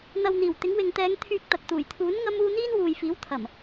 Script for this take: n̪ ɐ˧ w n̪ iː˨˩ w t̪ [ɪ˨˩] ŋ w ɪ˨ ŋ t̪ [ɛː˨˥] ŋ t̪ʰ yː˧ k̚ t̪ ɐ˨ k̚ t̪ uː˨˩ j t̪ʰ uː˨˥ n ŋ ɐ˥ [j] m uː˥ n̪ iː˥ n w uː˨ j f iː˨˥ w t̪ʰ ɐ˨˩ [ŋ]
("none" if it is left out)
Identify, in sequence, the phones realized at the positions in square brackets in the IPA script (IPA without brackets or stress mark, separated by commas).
ɪ˨˥, ɛː˨˧, none, m